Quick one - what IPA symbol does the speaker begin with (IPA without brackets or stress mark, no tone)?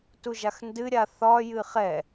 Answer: t